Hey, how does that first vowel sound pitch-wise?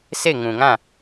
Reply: falling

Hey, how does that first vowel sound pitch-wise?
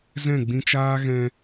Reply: falling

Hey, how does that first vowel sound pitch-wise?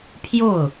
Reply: falling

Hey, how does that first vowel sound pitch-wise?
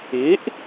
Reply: rising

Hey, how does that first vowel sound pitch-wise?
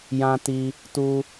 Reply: high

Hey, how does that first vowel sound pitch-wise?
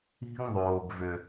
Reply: high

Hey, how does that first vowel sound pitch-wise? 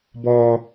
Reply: high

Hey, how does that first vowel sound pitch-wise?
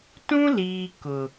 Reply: high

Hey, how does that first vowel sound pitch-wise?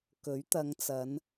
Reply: rising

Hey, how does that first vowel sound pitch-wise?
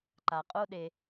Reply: low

